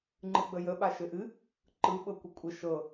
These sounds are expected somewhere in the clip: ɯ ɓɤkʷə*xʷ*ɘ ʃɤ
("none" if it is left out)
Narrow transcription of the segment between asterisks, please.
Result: kʷʼ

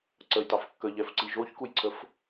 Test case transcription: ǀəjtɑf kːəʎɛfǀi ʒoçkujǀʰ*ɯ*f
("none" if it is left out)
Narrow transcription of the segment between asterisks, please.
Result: ə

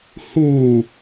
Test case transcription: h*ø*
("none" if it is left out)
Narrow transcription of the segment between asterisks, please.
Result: u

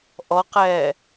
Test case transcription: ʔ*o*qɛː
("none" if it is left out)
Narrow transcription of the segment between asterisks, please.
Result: ɔ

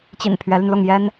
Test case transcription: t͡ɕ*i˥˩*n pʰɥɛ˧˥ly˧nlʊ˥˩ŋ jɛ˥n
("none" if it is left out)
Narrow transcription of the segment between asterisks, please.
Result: ḭ˨˩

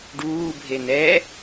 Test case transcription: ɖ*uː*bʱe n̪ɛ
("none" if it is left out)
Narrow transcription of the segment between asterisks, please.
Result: uː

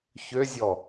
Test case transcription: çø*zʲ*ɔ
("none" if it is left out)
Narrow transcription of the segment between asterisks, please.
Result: zʲ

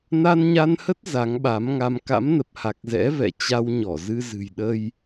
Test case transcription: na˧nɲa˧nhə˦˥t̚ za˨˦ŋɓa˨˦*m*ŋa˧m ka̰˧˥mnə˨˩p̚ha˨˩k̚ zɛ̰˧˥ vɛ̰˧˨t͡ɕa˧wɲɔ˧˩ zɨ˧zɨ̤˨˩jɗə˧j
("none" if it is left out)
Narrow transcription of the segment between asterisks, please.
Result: m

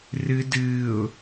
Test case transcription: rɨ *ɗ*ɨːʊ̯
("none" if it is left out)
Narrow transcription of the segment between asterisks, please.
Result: d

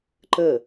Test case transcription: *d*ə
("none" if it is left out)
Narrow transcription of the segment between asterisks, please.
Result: ǃ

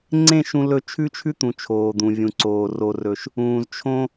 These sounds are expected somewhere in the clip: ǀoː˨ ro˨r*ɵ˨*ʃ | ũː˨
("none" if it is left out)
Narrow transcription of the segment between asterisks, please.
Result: ɵ˨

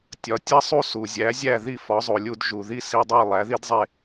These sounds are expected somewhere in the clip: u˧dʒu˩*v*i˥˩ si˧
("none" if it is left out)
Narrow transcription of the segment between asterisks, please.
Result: ð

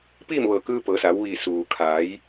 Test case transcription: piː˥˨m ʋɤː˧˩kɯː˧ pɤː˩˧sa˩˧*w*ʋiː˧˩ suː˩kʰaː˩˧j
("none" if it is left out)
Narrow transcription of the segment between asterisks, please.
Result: w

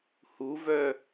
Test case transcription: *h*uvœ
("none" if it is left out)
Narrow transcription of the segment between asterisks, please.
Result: h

